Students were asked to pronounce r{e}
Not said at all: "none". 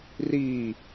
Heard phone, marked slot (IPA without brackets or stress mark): i